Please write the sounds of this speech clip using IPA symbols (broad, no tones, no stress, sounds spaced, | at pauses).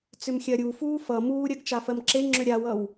t͡s ʏ m xʲ ɜ ɾʲ u f uː f ʌ m uː ɾʲ ɜ ɡ t͡ʃ a f ɜ m ǁ e ŋ͡ǁ ʏ ɾʲ a w ʌ w